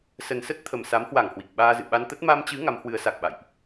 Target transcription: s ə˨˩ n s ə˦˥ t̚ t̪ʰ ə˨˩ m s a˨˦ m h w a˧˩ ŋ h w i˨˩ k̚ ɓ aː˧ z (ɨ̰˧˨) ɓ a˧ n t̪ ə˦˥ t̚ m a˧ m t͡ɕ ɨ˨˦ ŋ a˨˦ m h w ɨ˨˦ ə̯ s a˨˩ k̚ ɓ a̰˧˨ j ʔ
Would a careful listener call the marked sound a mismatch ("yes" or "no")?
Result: no